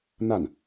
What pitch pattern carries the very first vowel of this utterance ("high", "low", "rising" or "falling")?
falling